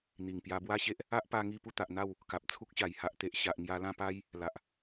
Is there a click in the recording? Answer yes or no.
no